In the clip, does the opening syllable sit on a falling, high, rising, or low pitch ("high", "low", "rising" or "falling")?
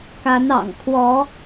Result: rising